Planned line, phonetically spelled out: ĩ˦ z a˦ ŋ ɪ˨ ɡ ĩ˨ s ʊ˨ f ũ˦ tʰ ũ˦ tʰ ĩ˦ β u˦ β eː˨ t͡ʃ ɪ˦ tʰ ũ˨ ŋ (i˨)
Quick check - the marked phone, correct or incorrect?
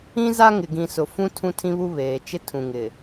incorrect